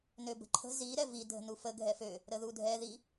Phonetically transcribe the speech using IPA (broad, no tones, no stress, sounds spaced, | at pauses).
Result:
n ø b ə̤ ǃʰ ə̤ z i ɾ ɛ v i dʱ ə̤ n u f ə ɡʱ ɛ f ø | ɾ ə ð u dʱ ɛ ð i